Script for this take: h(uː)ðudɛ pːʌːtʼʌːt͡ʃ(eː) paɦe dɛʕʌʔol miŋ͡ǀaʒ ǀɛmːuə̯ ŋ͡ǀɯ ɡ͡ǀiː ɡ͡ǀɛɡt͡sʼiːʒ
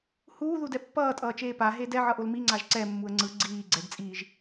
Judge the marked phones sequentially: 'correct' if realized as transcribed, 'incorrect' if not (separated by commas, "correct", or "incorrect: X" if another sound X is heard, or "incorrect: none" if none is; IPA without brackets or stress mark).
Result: correct, correct